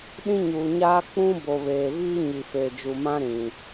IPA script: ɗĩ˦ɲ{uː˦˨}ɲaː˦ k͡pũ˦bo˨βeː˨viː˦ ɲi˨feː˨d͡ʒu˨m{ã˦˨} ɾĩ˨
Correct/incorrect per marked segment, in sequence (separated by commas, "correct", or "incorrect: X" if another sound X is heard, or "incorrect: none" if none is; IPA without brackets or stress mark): incorrect: uː˨, incorrect: ã˦